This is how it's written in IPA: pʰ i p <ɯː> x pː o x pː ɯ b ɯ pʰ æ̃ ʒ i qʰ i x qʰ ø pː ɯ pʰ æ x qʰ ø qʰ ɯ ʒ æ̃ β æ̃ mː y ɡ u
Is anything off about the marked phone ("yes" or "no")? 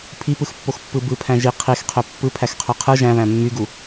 yes